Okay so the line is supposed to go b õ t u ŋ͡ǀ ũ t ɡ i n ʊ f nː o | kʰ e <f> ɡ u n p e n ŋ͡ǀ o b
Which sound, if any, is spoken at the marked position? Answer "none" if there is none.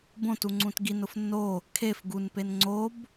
f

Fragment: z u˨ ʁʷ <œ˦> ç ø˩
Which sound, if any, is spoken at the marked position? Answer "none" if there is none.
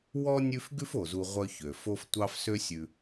œ˦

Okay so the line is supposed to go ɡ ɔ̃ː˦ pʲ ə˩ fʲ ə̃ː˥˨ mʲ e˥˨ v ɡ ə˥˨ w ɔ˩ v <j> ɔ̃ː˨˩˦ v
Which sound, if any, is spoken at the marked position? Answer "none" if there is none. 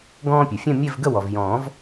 j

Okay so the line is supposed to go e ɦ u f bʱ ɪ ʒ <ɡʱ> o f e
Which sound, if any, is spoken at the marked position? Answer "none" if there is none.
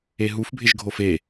ɡʱ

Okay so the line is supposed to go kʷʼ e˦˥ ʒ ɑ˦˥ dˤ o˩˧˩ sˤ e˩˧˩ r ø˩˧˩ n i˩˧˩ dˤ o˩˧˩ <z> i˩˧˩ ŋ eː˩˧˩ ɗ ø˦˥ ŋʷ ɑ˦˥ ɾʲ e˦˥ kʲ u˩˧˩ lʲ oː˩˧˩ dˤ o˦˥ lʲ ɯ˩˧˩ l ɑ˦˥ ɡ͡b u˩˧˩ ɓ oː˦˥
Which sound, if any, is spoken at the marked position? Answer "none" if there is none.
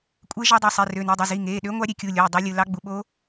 z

